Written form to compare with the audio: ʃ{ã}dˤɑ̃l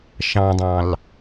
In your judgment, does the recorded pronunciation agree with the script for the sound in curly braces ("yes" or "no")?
no